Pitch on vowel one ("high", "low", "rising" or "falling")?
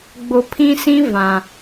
low